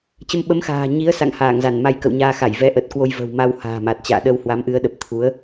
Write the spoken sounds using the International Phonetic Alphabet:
t͡ɕ ə˧ m ɓ ə˨˦ m x a̤ː˨˩ ɲ i˨˦ ə̯ s a̰˧˨ ŋ h aː˧˩ ŋ z a˧˩ n m a˧ j k ə̰˧˨ w ɲ aː˧ x a˧˩ j v ɛ˨˦ ʔ ə˨˩ t̚ k w o˧ j v ə̤˨˩ w m a˧ w h a̤ː˨˩ m a˨˩ t̚ t͡ɕ a̰ː˧˨ ɗ ə˧ w h w a˨˦ m ʔ ɨ˨˦ ə̯ ɗ ə˨˩ p̚ t̪ʰ u˨˦ ə̯

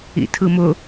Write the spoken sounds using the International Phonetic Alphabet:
ḭ tʰ ɯ m ʊ

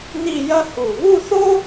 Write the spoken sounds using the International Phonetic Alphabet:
n i˥˧ j ɐ˥ h u˧˩ β u˥˧ θ o˥

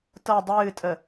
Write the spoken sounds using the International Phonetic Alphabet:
t ɤ dˤ ɨː tʼ ə

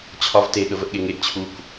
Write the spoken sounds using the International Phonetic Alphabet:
t͡ɕʰ ɒ v t e ɠ ə v ə ʔ ɠ e ŋ e ʔ t͡ɕʰ u k

